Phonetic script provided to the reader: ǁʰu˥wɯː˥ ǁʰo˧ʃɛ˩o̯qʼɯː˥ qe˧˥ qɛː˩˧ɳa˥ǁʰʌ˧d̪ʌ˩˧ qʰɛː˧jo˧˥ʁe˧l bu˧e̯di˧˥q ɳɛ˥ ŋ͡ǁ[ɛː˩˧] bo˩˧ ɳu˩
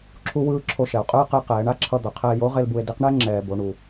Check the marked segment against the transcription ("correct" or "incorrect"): incorrect